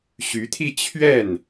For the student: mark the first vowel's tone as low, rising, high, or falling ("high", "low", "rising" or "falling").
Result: rising